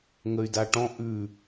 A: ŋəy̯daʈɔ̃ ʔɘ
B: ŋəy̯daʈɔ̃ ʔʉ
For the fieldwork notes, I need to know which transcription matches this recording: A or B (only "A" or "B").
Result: B